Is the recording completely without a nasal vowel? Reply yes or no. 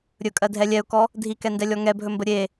yes